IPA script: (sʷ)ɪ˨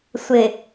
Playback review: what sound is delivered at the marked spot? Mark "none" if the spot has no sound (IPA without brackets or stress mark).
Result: sʷ